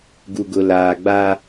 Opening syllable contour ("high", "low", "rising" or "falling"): low